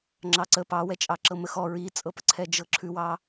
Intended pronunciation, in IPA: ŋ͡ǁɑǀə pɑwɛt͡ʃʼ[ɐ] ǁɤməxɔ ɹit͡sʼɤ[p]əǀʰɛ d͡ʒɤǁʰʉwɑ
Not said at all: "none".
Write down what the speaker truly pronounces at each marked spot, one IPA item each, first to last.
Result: ɑ, p

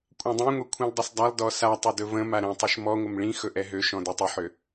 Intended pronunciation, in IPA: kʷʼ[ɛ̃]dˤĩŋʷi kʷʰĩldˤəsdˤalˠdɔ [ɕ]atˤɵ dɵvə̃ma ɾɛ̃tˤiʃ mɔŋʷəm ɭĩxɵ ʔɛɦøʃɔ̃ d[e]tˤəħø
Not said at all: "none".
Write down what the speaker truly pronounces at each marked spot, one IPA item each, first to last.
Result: ɛ̃, s, ø

